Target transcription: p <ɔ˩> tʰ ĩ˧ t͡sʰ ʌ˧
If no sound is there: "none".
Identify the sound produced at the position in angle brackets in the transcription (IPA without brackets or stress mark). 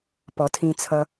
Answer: ɔ˩